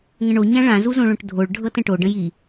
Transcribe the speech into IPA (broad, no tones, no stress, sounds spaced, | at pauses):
ŋ ə̃ ɳ o ɲ ã ɭ ã z u z õ ɭ õ ʈ dʱ o ɭ ɖʱ ɤ t ə̃ ʈ o ɖ ə̃ j i